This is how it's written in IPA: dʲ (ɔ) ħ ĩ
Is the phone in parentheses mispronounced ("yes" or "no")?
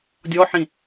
no